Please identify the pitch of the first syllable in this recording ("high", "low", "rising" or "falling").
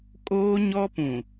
high